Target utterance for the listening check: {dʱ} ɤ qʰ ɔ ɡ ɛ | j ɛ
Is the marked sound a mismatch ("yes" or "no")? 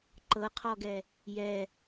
yes